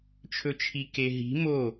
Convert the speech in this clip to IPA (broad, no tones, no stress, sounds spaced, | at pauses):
t͡ʃʰ ɵ t͡ʃʰ i k e ɦ i̤ m o